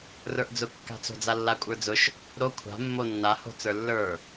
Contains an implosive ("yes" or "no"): no